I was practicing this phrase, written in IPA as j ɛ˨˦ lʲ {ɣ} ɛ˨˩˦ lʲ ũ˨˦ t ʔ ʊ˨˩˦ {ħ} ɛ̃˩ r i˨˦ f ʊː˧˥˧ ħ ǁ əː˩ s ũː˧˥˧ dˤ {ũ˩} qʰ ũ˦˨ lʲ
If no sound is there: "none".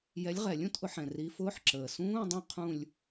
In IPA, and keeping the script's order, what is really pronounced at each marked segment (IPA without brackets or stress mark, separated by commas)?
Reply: ʁ, ħ, ũ˦˨